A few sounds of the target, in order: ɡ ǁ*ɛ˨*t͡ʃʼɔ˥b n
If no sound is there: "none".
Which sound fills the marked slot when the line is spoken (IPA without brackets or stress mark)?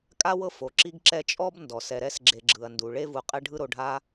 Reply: ɛ˦